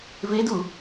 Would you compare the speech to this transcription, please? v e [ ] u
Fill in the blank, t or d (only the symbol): d